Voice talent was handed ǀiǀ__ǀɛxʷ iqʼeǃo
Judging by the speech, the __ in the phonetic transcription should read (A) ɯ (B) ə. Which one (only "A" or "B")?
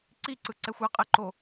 A